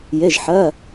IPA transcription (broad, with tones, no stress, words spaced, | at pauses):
je˩˧˩ʒħɜ˩˧˩